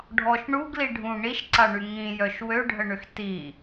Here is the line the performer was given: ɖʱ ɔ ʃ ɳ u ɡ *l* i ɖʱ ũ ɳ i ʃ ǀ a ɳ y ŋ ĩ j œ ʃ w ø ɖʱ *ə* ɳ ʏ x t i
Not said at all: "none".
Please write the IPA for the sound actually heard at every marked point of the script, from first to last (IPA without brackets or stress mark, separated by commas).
l, ə